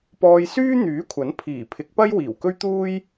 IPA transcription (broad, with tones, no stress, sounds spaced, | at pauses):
p ɔː˧ j s yː˥ n̪ yː˨˥ kʷʰ ɐ˨˥ n pʰ iː˨˩ pʰ ɪ˨˥ k̚ p ɐ˥ j w iː˨˩ w k ɵ˥ ɥ t̪ uː˥ j